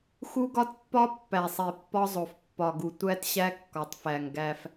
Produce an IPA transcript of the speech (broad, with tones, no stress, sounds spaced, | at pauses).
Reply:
x u˦ ɡ ɒ˦ t pː ɒ˦ pː æ˨ sˤ e˨ pː ɒ˦ zˤ o˨ f pː ɒ˨ ɡ u˨ tʷ æ˦ t ɕ æ˦ kː ɒ˨ tˤ f æ˨ ŋ ɡ æ˦ f